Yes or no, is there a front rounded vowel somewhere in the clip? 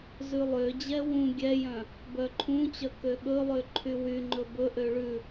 yes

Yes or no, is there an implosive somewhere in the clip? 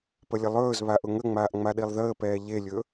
yes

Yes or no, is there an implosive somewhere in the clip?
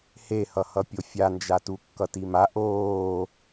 no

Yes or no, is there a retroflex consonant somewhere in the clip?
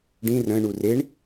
yes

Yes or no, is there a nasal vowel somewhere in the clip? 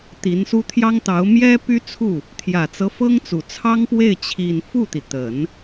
no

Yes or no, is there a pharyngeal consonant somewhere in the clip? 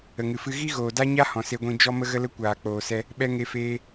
no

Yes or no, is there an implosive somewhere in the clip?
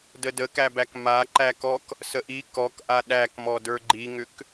yes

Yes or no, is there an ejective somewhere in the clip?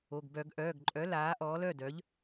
yes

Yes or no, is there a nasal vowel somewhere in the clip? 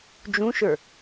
yes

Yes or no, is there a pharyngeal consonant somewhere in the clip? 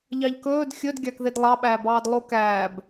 no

